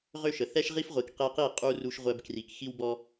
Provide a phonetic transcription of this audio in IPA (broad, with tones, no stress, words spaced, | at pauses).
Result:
ʁø˦ʃə˨ θɛ˦ʃʁi˦fʁʷi˨k qe˧qi˦˨ qʼu˧ ru˧ʃʁʷɛ˧bkri˨k xi˦wbɔ˦